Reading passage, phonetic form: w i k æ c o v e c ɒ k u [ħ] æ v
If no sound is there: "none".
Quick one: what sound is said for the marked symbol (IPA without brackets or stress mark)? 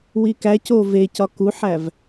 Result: ħ